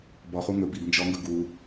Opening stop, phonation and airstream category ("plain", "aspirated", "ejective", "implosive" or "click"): plain